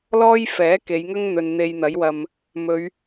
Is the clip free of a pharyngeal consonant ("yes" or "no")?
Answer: yes